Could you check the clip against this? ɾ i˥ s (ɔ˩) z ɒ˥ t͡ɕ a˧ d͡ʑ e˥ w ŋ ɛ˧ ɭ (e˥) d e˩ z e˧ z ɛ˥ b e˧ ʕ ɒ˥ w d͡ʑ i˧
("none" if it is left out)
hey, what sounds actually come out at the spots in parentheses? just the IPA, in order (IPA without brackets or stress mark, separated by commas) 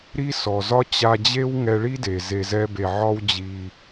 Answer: ɔ˩, i˥